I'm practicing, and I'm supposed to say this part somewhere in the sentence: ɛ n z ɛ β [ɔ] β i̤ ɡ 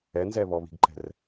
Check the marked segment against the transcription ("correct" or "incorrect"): correct